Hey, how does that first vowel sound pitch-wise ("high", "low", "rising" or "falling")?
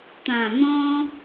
low